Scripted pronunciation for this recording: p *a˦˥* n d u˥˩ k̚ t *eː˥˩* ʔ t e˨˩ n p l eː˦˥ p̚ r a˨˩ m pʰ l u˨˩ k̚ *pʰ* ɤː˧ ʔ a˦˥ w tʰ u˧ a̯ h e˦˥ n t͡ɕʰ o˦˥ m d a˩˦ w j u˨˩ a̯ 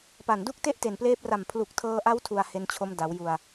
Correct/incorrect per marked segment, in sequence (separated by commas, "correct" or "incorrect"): incorrect, incorrect, incorrect